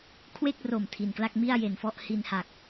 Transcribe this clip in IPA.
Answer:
kʰ w e˥˩ k̚ r o˨˩ m tʰ i˨˩ n k l a˥˩ k̚ m i˥˩ a̯ j e˨˩ n f ɔ˥˩ ʔ h i˧ n h a˨˩ k̚

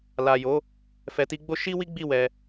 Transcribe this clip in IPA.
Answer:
l a˨ j o˨˦ | f ɛ˨ t i˧ ɡ͡b o˦ ʃ i˦ w i˦ ɡ͡b i˦˨ w ɛ˧

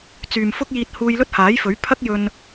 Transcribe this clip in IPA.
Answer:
t͡s yː˨ m f ʊ˥ k̚ j iː˧ t̚ h uː˧ j l ɵ˥ t̚ h aː˨˥ j f ɵ˨˥ ɥ pʰ ɐ˥ k̚ j ɵ˧ n

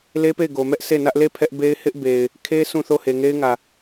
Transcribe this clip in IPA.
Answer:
l e˦ p e˦˨ ɪ̯ ɡ o˨ m ɛ˦ ʔ s e˦˨ n ä˦ ʔ l e˦˨ pʰ ɛ˦ ʔ b e˦ ɪ̯ h ɪ˦ ʔ b e˨ ɪ̯ | kʰ e˦ sʰ ũ˦˨ θ o˦˨ h e˨ ŋ e˦ ɪ̯ ŋ ä˨

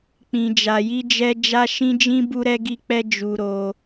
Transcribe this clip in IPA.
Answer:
k͡p ĩ˨ d͡ʒ a˨ j i˧ d͡ʒ ɛ˧ d͡ʒ a˦ ʃ ĩ˦ d͡ʒ ĩ˦ b u˦ ɾ ɛ˦ ɡ i˦ k͡p ɛ˦ d͡ʒ u˧ ɾ o˧

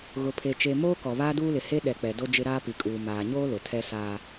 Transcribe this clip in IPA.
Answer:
ɣ ʊ˨ pʰ e˨ t͡ʃ e˨ m oː˦ k ɔ˨ β aː˦ d uː˦ l ɪ˨ h e˦ ɗ ɛ˨ k͡p ɛ˨ d o˦ d͡ʒ ɪ˦ ɾ aː˦ p i˨ kʼ uː˨ m aː˨ ɲ oː˦ l ʊ˨ tʰ ɛ˦ s aː˦

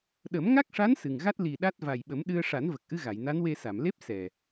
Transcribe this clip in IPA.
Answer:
ɗ ə˨˩˦ m ŋ a˦˥ k̚ ʂ a˧˥ n s ɨ˨˩ ŋ ɣ a˦˥ t̚ l i˨˩ ɗ a˦˥ t̚ v a˨˩ j ɓ ə˨˩˦ m ɗ ɨ˧ ə̯ ʂ a˨˩˦ n v ə˨˩ k̚ ʔ ɨ˧ ɣ a˨˩˨ j n a˧˥ n w e˧ s a˨˩˨ m l e˦˥ p̚ s ɛ˨˩

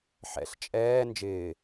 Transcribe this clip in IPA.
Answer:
ħ ɛ̰ ɬ t͡ʃʼ ɛː n d͡ʒ ɪː

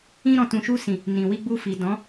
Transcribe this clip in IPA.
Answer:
ĩ˧ ɾ ɔ̃˨ t ũ˨ ʃ u˧ s ĩ˨ | n ĩ˨ w i˧ ɡ͡b u˧ f i˨ d ɔ̃˨˦

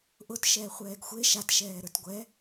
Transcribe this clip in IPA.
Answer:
ʔ ʊ t ʃ ɛː χʷ ɛː ɡ xʷ e ʃ a t ʃ ɛː ɾ ə˞ t ɡʷ ɛ

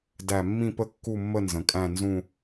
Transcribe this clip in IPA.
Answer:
d æ˥˧ mː ĩ˥˧ p ə˥˧ kː u˥˧ mː ə˥˧ n z ə̃˩˧ kʼ æ̃˥˧ n z ũ˥˧

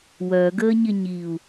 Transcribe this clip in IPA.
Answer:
w œ ɡ əː ɲ ɪ ɲ i u̯

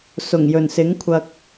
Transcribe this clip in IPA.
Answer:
s ʊ˨˩ ŋ j ɵ˨˩ n s ɪ˨˥ ŋ kʷʰ ɐ˧ k̚

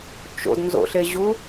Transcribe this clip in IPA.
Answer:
t͡ʃ o̰ d n z o̰ ɬ e ʑ u

